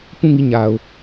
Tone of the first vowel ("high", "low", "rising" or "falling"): falling